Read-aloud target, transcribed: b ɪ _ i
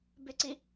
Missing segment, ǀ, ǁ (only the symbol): ǀ